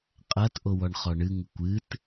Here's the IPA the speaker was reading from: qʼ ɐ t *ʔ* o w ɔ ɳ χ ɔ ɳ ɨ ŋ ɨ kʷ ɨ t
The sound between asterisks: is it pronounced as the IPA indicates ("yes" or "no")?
yes